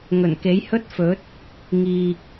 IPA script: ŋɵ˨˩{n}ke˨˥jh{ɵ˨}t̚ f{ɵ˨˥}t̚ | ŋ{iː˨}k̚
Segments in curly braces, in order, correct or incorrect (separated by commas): correct, incorrect, correct, correct